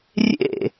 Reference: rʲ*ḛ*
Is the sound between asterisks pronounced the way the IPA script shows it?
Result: yes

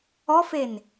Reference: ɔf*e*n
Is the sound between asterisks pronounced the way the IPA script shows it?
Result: yes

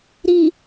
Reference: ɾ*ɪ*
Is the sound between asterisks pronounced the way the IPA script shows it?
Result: no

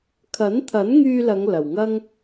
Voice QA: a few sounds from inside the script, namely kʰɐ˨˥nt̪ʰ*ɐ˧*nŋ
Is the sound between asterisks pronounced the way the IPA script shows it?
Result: no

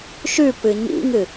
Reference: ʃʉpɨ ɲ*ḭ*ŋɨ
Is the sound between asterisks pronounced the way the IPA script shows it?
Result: yes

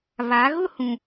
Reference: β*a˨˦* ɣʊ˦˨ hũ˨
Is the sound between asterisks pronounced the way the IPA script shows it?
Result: yes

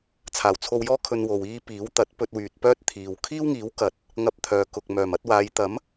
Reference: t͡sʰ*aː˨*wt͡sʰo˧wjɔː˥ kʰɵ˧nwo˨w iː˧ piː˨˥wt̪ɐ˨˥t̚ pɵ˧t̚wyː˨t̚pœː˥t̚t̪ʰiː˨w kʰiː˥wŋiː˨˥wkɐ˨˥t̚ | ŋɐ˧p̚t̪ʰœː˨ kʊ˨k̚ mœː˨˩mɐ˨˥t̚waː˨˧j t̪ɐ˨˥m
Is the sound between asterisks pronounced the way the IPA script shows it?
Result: no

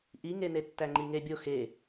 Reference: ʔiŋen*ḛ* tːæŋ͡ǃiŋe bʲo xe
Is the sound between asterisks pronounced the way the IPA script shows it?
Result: no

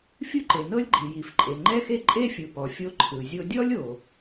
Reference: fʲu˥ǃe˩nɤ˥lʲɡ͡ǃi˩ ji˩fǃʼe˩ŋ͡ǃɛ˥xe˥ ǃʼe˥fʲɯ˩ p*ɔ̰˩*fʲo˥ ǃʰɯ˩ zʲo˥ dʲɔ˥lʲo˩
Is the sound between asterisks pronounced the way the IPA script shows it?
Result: no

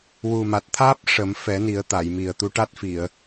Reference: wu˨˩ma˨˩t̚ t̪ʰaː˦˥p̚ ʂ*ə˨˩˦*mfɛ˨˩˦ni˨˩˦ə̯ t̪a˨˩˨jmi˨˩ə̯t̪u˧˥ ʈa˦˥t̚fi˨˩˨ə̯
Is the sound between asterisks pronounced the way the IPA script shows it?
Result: yes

